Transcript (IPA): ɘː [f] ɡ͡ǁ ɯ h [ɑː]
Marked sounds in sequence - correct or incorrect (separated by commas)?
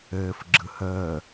correct, incorrect